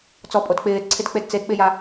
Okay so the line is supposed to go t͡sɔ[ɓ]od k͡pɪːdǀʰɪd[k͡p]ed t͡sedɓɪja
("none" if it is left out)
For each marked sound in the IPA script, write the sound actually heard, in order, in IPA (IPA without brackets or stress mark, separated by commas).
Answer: pʼ, k͡p